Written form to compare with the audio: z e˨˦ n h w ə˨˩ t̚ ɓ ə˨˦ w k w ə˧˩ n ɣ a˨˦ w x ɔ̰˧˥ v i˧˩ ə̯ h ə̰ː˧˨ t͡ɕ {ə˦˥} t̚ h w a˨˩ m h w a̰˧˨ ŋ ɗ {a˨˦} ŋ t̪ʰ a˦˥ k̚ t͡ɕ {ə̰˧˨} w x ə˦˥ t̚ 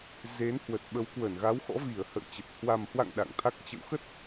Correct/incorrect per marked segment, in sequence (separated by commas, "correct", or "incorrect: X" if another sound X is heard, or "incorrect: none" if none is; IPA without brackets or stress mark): incorrect: ə˨˩, incorrect: a̰˧˨, correct